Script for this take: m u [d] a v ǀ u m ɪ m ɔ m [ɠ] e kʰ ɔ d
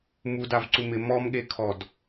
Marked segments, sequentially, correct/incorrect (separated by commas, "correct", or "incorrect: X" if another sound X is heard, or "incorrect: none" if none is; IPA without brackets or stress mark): correct, correct